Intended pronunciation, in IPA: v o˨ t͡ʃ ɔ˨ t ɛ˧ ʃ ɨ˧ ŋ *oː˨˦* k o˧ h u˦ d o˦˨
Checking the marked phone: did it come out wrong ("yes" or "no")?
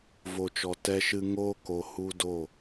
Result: yes